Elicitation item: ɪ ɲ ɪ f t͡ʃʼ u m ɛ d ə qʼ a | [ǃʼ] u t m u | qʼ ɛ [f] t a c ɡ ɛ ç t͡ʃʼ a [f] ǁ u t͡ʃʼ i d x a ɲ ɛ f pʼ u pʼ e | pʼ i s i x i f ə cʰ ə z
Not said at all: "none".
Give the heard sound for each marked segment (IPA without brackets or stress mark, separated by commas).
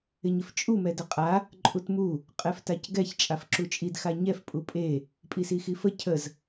ǃʼ, f, f